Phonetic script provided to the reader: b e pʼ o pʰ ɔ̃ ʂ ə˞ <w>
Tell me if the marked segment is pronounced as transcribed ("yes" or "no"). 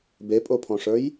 no